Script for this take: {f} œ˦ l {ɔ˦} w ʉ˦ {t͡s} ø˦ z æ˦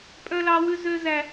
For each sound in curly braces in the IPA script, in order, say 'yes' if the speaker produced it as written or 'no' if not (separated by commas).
no, no, no